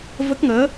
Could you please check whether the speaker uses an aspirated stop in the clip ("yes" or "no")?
no